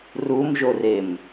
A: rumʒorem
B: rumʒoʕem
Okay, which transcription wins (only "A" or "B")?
A